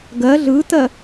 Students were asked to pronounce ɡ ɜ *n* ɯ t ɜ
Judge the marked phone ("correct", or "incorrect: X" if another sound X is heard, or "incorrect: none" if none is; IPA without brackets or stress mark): incorrect: ɮ